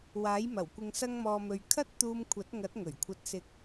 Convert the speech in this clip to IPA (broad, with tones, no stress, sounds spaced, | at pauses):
w aː˨˥ j m ɐ˨˩ w kʷ ɪ˨ ŋ s ɐ˧ ŋ m ɔː˨ m ɵ˨ ɥ kʰ ɐ˥ t̚ t̪ uː˧ m kʷʰ ɐ˨˥ t̚ ŋ ɐ˨˥ t̚ ŋ ɵ˨˩ ɥ kʷʰ ɐ˧ t̚ s ɪ˧ k̚